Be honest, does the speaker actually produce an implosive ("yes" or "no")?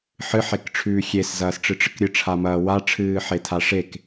no